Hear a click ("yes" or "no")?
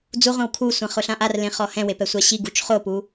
no